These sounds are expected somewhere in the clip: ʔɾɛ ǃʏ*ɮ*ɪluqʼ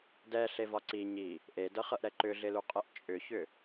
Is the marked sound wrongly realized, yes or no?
no